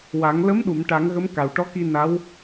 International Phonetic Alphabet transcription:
wa˨˩˦ŋ lə˧˥mɗu˨˩˨m ʈa˨˩˦ŋɣə˧˥m ka˨˩wʈɔ˧˥ki˧ na˧˥w

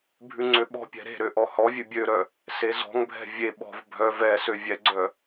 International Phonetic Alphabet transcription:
bʱʉŋ͡ǀøɓɔ̤pʲɛ̤ ɾe̤ɾø ʔɔhɔvʲʉ bʲøɾœ | sezɔ̤ŋbʱɛ̤ vʲe ɓɔ̤v bʱœ vɛ søvʲɛɡ͡ǀœ

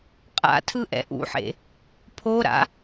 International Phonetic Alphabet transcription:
qʼa̰tʰɯ ʔɛ̰ʔṵħḛ | pʰoɾa̰

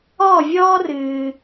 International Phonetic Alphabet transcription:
ɔː˥˨vʲɔː˥rɨː˨

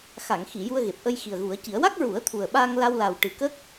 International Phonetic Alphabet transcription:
xa˨˩˨ŋxi˨˩˨ ju˧ə̯ɣe˨˩p̚ʔə˧j xi˨˩ə̯ɣu˨˩˦ə̯ci˨˩˦ə̯ wa˦˥k̚ɹu˨˩˦ə̯ t̪ʰu˨˩ə̯ɓaː˧ŋla˧w la˨˩wʈɨ˨˩kə˦˥k̚

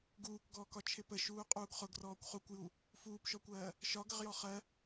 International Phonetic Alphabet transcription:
ɡuːkɡɔːkɒ t͡ʃʰɪpə ʃuːqʼuːɡχʊɡ rɔːkʷχukʷju | fuːpʃɔkʷɜː | ʃɒɡəʁjɔ χɜ

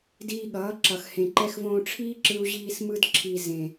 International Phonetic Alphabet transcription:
diː˧ɠʌː˨˦ǁʌ˨x hẽ˨ǃɛ˧xvõː˧ ʈ͡ʂʰiː˦ǁɯ˧u̯ʑiː˧s mɯ˧dǁʰi˨ zẽ˨

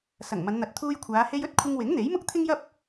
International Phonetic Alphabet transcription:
sɐ˨˩ŋmɐ˨˧nn̪ɐ˨˥t̚ t̪ʰuː˧jkʷʰaː˨˧ he˧jɵ˥t̚ kʷʰɪ˧ŋwɪ˨˥ŋ n̪e˨˥jmʊ˥k̚t̪ʰɪ˥ŋjɐ˥p̚

